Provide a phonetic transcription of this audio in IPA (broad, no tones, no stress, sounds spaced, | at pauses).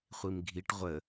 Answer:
χʷ i m ɡʱ i ʈ ʁʷ ə